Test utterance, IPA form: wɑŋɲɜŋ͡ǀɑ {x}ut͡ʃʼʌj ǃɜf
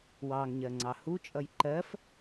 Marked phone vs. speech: incorrect: h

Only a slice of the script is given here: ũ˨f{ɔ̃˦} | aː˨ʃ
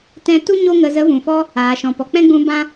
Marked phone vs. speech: incorrect: ɔ˦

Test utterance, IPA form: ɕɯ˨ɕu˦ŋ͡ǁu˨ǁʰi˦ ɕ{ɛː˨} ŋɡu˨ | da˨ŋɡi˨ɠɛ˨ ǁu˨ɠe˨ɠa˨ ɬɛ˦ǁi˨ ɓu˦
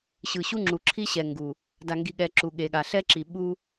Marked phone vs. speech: incorrect: ɛ˨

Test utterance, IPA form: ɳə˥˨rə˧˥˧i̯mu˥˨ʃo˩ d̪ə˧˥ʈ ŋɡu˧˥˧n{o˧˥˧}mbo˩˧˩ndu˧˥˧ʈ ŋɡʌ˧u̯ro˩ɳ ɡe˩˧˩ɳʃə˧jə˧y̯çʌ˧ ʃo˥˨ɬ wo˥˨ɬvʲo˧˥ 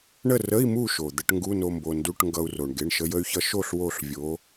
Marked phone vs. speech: incorrect: o˧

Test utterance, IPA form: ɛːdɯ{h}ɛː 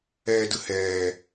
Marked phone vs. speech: correct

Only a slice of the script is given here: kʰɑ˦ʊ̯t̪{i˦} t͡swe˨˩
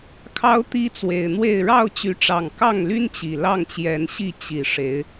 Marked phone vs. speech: correct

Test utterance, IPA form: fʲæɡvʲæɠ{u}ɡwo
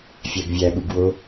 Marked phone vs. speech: correct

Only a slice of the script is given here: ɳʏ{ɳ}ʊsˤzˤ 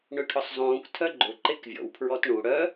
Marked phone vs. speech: incorrect: ʈʰ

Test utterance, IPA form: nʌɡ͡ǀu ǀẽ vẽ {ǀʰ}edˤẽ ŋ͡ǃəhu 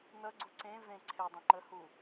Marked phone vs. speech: correct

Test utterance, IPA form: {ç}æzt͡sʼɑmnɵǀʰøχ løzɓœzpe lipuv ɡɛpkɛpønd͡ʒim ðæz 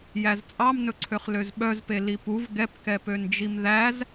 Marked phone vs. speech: incorrect: j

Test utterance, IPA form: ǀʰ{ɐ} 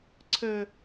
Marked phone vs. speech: incorrect: ə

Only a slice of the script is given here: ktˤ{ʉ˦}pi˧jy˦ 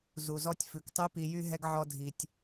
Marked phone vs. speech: correct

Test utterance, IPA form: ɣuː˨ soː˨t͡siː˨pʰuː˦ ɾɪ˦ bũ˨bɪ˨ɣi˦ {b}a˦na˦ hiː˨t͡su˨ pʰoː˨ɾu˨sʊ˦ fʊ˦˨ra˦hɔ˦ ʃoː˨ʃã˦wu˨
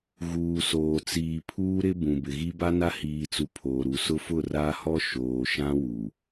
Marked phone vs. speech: correct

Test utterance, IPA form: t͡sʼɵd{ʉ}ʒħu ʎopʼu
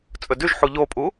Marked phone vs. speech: correct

